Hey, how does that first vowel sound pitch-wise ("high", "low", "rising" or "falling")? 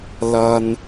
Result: low